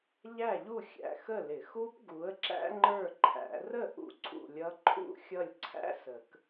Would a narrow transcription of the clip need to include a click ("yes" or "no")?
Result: yes